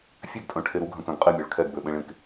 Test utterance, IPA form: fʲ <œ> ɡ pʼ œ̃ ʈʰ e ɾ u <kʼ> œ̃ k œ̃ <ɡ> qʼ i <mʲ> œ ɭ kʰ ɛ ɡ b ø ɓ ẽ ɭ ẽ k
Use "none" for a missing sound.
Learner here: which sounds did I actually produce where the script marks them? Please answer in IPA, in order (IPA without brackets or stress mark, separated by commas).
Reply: ø, ɡʱ, ɡ, mʲ